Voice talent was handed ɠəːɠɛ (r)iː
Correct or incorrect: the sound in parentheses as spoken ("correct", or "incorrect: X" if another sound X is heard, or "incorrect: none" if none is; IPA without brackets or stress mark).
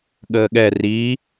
correct